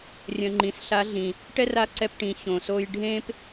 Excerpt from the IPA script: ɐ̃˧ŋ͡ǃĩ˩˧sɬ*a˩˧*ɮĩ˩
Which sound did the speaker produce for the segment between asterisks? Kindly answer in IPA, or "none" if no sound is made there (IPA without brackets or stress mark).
a˧˥